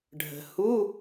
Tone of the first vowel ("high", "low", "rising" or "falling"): low